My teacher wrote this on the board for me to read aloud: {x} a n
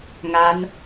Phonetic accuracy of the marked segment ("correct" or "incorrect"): incorrect